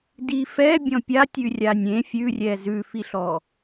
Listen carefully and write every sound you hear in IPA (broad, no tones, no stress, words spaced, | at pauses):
di fɛ bʲɔ̃pʲatʲʉ rʲanʲẽ fʲʉrʲɛ zʉfiɬɔ